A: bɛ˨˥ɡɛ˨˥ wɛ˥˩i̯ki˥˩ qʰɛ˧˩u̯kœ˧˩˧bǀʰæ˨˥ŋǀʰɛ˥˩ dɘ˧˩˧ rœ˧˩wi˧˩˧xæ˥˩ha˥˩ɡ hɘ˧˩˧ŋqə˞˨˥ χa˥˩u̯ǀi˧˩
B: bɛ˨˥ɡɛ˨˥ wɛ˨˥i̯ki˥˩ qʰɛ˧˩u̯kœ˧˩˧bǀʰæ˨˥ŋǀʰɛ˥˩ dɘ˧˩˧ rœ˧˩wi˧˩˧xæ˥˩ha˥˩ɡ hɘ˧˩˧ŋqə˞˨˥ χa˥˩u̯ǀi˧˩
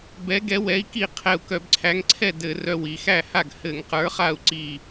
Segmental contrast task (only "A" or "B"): B